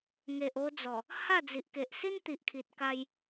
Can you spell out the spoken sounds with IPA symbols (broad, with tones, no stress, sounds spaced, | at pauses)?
ŋ e˨ ʔ o˧ d͡z ɔ˨˩ | h a˥˧ d͡z i˨ ʔ k e˨ ʔ s i˦ n t̪ i˨ ʔ kʰ i˨ t̚ k a˧ j